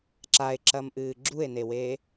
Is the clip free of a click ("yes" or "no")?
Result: no